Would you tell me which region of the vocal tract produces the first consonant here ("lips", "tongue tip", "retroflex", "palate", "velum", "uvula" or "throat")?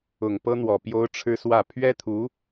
velum